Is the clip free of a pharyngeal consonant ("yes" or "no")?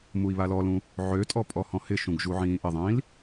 no